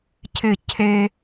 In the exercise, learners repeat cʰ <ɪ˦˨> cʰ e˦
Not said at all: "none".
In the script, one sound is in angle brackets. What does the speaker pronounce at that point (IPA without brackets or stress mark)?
ɪ˦˨